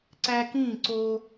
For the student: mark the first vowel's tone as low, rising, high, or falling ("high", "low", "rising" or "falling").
high